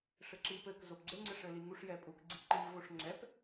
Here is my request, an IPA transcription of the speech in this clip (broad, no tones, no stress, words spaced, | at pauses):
ʂɘǁip ɘk zopɡ͡ǀɘ ŋ͡ǀɘʂɘliŋuʂ jɛpʼuk ɡ͡ǀiǃi voʂŋ͡ǀɛp